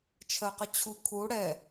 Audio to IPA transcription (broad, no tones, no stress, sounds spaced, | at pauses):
t͡ʃʰ ɜ q ə t͡ɕʰ u kʰ u ɽ ɛ